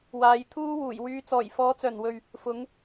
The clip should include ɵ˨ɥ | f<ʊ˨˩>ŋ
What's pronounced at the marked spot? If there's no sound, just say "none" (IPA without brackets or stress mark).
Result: ʊ˨˧